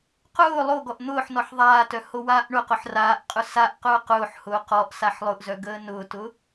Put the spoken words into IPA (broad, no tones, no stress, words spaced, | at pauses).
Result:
qʊː lˠoɡɔʔ n̪ʊːħnɔħ ðˤaːtœ howaːʔɳʊqʊħ raːʔqʼʊ saʔqʊː qʊːħhʊː qɔʔ saħlˠʊʔzœ ɡəːnʊːtʊ